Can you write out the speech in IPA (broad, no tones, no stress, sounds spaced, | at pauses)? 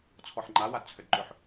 t͡sʰ ɔ ħ ŋ͡ǃ a w a d t͡sʰ ʏ d ǃ ʏ ħ